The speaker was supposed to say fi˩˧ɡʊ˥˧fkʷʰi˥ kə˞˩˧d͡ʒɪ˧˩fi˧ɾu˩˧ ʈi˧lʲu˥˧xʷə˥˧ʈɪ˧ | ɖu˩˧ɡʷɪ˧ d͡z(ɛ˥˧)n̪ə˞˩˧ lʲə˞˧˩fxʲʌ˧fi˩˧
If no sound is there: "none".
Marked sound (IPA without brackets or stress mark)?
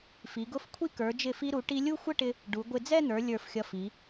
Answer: ɛ˥˧